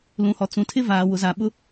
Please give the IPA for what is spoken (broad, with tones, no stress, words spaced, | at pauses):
lũ˨hɔ˨ t͡sũ˨tʰɪ˦vaː˨ wʊ˨za˨ɓʊ˦